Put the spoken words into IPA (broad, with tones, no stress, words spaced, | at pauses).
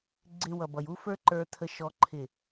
ɡ͡ǀɪ˧wʌ˨bʌ˨j u˦fə˞˦ ǃə˞˧t̪ʰə˧ʃɔ˧ ǃʰɪ˦˨